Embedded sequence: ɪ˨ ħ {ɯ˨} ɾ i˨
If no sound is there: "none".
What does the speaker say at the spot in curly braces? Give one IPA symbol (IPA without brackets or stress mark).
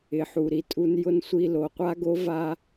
u˨